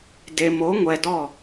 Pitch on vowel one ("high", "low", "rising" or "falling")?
low